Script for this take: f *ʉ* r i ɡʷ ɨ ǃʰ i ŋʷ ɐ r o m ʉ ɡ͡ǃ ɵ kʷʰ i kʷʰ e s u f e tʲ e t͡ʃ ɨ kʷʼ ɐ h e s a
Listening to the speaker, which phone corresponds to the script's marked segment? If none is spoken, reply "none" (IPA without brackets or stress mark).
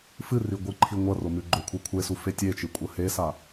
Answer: ɨ